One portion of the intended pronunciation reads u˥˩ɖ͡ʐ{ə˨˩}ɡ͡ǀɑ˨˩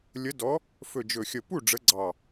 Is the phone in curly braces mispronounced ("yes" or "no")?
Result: yes